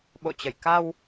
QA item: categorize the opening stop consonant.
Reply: implosive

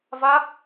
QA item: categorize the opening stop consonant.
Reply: plain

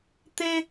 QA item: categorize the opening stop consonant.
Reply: plain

